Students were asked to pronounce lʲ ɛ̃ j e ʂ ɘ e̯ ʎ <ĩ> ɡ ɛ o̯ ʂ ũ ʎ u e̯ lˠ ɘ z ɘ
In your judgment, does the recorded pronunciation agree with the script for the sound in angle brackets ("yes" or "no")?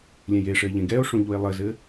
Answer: no